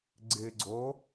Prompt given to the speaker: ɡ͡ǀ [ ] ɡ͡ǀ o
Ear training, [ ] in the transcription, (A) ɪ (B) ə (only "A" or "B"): A